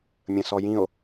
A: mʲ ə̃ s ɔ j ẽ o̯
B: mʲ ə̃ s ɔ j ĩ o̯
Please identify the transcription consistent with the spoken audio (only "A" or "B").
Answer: B